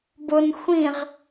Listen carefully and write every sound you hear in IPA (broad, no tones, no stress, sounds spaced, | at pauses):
b ʊ n xʷ ĩ ʁ